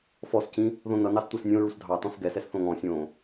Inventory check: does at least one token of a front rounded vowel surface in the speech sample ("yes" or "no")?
no